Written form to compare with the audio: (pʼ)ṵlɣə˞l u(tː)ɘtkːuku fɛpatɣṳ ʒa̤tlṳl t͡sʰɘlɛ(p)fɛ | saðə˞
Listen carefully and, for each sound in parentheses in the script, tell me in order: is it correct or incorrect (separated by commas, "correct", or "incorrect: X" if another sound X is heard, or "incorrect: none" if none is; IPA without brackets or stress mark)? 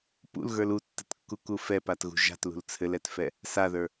incorrect: p, correct, incorrect: t